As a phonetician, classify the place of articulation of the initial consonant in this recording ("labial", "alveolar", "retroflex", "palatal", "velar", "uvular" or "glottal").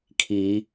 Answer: velar